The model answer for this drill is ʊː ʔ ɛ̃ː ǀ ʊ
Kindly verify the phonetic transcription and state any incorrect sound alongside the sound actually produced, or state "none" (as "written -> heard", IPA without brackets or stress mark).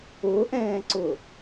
none